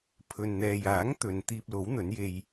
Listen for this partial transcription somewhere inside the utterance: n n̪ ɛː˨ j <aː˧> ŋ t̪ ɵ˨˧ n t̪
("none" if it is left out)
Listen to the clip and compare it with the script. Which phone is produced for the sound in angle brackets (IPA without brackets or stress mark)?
aː˨˥